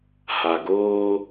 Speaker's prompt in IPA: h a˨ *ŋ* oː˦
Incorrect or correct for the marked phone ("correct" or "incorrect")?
incorrect